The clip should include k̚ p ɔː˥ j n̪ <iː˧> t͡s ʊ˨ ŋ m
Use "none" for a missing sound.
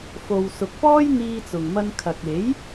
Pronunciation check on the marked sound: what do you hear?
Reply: iː˧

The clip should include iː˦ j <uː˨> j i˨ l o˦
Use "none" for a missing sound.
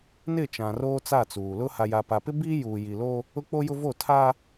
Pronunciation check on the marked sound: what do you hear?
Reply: uː˨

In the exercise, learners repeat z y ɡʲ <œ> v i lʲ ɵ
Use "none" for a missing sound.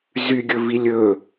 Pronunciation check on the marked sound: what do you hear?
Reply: ɵ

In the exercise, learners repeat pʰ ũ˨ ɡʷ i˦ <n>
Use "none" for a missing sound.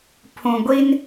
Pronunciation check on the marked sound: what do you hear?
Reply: n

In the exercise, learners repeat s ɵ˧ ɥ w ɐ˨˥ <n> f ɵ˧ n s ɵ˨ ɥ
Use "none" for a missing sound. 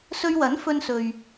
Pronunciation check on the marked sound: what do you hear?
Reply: n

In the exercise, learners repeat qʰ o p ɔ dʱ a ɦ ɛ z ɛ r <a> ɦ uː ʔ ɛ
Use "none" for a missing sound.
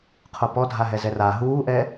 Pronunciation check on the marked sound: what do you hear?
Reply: a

